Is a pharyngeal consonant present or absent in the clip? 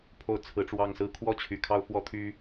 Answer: absent